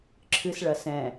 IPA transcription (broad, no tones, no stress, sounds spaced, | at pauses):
ǁʰ ɨ s ɭ ɐ s ɛ̃